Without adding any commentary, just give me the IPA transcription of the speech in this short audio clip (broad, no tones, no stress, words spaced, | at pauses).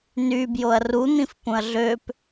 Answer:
nybjoɐ̯ run̪ĩfpũɐ̯ ɮøp